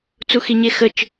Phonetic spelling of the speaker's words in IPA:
t͡s u x i ɲ e x ə t͡ʃ

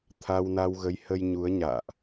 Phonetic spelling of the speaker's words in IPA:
t̪ʰ a˧ w n a˧ w ɣ ə˨˦ j h ə˧ j ɲ u˨˦ ə̯ ɲ a̰ː˧˨ ʔ

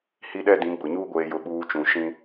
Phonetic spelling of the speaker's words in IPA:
h i˦ ɗ ɛ˦ d ĩ˨˦ ɡ͡b ʊ˨ ɲ uː˦ ɡʷ eː˦ j ʊ˦˨ ɓ uː˦ t͡ʃ ũ˨ ʃ ĩ˦

